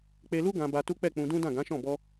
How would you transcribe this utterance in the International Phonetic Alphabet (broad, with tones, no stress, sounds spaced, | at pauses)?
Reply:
k͡p e˧ l u˦ ɡ ã˧ b a˧ t u˦ k͡p ɛ˦˨ k͡p ũ˧ d ũ˦ d ã˦˨ ɡ ã˨˦ ʃ ɔ̃˦˨ b ɔ˧